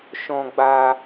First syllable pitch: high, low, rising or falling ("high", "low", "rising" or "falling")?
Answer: high